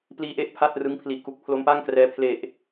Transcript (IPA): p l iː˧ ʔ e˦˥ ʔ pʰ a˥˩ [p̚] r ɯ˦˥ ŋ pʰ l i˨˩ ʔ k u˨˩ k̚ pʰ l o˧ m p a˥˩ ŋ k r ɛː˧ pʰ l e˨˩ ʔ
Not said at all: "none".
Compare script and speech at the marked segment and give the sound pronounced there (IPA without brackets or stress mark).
t̚